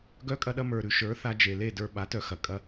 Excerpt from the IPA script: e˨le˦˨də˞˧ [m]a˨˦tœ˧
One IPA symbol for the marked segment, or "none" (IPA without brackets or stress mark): ɓ